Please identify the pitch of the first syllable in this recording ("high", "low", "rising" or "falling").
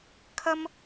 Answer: high